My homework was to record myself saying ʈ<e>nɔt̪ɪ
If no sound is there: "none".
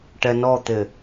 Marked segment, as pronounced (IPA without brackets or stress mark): ɛ